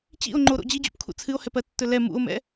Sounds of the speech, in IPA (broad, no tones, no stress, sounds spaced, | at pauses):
t͡ɕ ḭ o̯ ŋ͡ǃ o ɾ o̰ d͡ʑ i d͡ʑ ṵ p kʰ ṵ t͡sʰ ɨ o̯ h ɛ p ɜ tː ɵ l ɛ m ṵ o̯ m ɛ̰